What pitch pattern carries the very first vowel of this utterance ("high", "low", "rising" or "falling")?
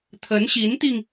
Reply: rising